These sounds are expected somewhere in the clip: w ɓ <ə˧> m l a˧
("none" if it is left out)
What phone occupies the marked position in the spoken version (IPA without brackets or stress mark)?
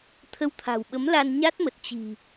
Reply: ə˨˦